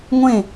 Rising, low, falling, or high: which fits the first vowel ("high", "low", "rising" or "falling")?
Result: falling